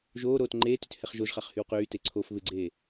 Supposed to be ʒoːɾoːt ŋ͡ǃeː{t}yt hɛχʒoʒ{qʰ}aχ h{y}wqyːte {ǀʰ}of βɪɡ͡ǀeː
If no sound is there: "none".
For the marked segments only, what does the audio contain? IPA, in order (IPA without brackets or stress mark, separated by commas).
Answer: t, χ, y, ǀʰ